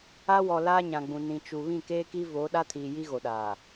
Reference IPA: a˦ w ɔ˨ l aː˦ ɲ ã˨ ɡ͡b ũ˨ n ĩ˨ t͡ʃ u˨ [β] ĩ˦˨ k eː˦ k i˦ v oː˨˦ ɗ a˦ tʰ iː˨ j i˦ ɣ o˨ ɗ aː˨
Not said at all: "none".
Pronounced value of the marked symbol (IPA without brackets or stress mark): β